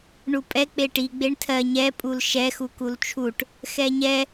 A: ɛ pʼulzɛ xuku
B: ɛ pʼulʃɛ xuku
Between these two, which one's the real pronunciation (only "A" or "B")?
B